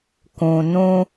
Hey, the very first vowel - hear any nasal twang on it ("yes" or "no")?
yes